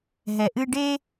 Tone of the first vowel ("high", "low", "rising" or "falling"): low